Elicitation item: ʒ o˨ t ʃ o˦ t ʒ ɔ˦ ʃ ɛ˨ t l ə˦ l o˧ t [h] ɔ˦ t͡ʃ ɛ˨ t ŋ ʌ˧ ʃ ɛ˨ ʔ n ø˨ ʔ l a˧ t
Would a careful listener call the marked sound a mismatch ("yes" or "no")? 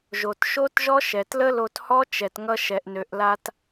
no